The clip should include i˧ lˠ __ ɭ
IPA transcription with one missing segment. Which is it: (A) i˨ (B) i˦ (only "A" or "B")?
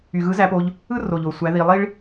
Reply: B